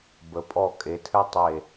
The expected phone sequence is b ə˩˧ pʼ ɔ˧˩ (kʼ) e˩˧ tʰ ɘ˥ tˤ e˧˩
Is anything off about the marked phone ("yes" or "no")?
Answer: no